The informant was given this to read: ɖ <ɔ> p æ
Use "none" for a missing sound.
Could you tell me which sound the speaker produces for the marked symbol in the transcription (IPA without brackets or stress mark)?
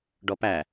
ɔ